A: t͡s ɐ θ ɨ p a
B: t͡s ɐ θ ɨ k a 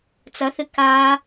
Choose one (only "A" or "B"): B